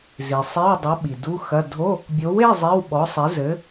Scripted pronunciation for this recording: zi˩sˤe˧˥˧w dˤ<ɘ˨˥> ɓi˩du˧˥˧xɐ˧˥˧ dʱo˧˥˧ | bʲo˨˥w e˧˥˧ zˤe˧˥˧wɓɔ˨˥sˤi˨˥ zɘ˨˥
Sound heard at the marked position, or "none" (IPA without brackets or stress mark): ɘ˨˥